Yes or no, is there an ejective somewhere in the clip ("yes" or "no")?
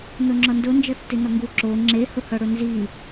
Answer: no